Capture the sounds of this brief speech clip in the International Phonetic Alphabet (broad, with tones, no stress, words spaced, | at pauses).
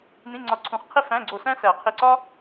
nĩ˧˥˧ŋ͡ǀɒ˧ ǀʰũ˨˩˦χqʰe˥ fæ̃˧˥˧ ɡ͡ǀo˧˩sæ̃˥sæ˨˩˦ qʰe˧˩ǀɒ˥